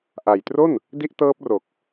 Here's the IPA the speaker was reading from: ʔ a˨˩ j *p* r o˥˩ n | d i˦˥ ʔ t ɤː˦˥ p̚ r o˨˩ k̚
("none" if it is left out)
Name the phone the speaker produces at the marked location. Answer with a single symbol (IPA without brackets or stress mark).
t